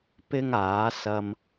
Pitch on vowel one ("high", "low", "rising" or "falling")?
high